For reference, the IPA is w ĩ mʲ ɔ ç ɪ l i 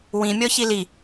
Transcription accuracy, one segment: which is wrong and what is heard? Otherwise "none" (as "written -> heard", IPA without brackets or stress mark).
ɪ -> i